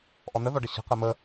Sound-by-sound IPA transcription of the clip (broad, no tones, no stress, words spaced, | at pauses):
ʔɔnəðɔɖə ɕə̤qɘ mə